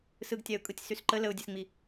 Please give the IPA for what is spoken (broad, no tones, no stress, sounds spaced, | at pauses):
s ɯ ɡ tʲ a ʊ̯ kʼ ɯ tʲ s y s ǃ ə l ə ʊ̯ dʲ ɛ s ŋ͡m i